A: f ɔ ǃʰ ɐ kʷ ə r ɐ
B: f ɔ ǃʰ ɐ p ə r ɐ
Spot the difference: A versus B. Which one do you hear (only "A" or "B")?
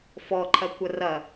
A